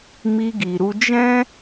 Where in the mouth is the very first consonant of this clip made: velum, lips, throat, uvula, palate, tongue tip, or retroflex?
lips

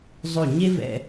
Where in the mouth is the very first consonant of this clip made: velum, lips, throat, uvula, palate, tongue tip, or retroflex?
tongue tip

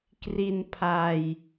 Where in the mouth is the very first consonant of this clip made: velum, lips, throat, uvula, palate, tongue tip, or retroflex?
velum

